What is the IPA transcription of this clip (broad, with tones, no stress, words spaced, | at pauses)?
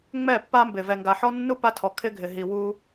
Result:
ŋ͡mɛ˦˨pːa˦mbɪ˨ vɛ˨ŋɡa˨ħɔ˦nːu˦ pa˦tʰɔ˨kʰɪ˦ɡʱɪ˨ ɦi˨ wu˦